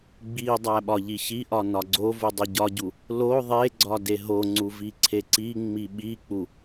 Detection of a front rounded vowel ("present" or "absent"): absent